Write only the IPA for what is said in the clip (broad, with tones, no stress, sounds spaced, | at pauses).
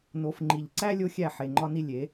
n o˨ f ŋ͡ǃ i˨ ʎ ǀ æ˦ lʲ o˦ xʲ æ˦˨ ħ e˨ ŋ͡ǃ ɒ˦ n i˦ lʲ e˨˦